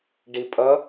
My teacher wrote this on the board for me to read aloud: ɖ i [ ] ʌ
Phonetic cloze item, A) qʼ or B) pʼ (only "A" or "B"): B